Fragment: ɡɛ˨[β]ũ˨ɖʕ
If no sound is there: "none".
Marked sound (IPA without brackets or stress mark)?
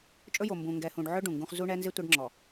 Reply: h